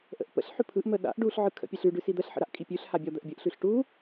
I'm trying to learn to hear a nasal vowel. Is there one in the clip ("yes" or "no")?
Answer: no